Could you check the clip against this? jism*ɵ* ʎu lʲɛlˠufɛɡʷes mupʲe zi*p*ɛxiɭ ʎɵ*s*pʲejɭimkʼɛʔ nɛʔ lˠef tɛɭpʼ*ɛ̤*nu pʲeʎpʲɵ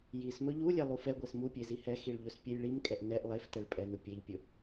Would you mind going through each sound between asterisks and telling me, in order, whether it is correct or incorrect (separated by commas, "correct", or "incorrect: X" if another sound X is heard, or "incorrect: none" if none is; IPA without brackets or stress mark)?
correct, incorrect: h, correct, incorrect: ɛ